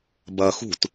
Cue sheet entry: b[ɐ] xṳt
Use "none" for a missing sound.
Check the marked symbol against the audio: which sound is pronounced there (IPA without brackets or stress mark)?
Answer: ɐ